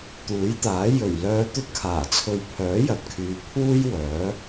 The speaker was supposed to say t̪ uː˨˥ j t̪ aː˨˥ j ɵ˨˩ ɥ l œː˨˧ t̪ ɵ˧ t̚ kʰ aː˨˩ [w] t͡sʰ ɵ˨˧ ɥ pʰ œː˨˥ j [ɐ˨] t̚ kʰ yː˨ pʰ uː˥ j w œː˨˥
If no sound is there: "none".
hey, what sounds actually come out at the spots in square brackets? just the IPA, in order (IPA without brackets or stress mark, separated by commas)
none, ɐ˨